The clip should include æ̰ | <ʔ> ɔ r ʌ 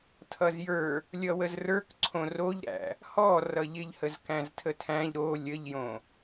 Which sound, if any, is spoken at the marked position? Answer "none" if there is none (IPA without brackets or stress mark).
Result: h